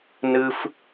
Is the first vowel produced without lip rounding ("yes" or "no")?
yes